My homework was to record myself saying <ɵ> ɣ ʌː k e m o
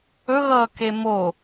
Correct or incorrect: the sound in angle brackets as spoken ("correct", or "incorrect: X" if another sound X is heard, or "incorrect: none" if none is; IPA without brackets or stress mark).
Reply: correct